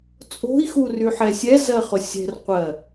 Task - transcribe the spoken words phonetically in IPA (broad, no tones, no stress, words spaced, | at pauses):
t͡sʼo̤i̯xuryħɛ sʲɛzɜχʊ sʲɛ̤rqʷɜ